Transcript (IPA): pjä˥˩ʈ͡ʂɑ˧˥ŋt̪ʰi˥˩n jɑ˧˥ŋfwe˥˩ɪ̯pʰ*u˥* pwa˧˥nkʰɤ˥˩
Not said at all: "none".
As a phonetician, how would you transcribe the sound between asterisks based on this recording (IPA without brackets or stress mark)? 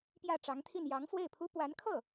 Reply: u˥